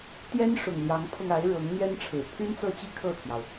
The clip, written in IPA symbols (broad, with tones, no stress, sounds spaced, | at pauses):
t̪ j ɛ˥ n ʂ ʊ˨˩ ŋ l j ɑ˧˥ ŋ pʰ ɤ˧ ŋ a˧˥ ɪ̯ ɻ ɤ˧˥ ŋ n̪ ɥ ɛ˥ n ʈ͡ʂʰ ɻ̩˨˩ pʰ y˥ n t͡s ɤ˥˧ t͡ɕ i˥˧ kʰ ɤ˥˩ t̪ʰ j ɑ˩ ʊ̯